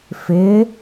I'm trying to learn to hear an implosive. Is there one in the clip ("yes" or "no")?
no